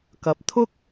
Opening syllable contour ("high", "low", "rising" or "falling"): rising